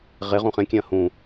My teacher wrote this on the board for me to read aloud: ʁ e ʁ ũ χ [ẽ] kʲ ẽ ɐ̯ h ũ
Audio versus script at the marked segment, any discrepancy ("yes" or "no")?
no